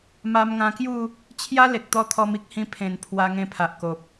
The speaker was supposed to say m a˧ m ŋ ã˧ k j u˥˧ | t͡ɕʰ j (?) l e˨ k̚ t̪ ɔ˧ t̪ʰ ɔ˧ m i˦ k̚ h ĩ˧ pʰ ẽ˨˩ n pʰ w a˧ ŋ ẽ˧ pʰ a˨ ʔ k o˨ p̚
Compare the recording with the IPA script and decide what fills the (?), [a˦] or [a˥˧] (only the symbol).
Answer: a˦